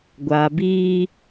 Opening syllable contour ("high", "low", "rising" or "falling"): low